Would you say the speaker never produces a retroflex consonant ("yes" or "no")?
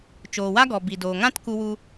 yes